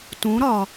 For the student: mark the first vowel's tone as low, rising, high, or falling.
rising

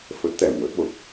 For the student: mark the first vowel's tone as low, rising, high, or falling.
rising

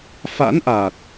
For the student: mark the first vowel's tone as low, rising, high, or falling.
rising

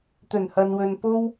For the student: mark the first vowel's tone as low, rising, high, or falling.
low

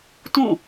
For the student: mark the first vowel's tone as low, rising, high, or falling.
falling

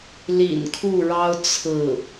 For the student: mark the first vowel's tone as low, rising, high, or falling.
low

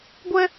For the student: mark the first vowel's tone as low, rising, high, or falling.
high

